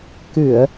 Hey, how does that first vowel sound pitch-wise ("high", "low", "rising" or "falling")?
low